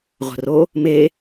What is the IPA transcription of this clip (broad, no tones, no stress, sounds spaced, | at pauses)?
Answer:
ʁʷ ə̤ r o | m e